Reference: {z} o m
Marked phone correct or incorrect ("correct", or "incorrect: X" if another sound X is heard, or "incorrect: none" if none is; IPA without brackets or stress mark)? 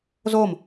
correct